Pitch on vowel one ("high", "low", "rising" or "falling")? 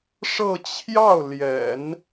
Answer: falling